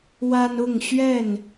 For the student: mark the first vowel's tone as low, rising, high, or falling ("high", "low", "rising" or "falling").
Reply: high